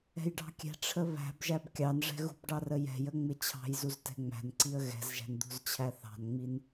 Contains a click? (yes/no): yes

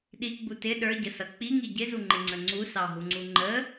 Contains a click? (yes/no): yes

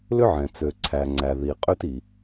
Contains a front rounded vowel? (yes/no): yes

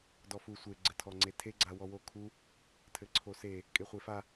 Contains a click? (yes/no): yes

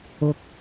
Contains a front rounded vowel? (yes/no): no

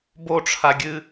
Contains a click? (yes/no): no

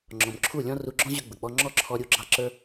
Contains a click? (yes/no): yes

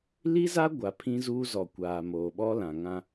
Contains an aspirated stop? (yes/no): yes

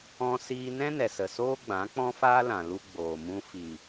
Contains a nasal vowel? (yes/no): yes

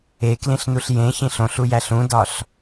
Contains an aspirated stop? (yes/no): no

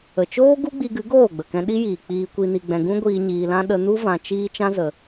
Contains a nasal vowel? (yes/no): yes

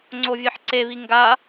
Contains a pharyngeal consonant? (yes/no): yes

